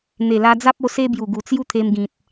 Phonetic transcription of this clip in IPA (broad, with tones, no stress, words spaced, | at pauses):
n̪e˨˩la˧d͡za˦p̚o˧ se˦bju˨˩ɡu˨˩ t͡sju˦t̪ʰe˧mɡĩ˨t̚